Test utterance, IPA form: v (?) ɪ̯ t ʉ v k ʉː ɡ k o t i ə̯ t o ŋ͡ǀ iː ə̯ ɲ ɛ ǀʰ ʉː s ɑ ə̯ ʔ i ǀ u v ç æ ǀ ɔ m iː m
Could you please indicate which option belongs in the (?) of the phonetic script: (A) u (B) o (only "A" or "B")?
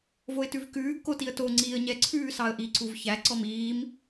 B